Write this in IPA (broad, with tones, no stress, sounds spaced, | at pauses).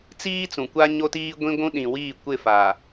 t͡s iː˦ t͡s ũ˨ kʷ a˦ ɲ o˦ t iː˦ ɡʷ ĩ˦ ɡʷ ũ˦ ɗ ĩ˨ w iː˦˨ kʷ ɪ˦˨ f a˨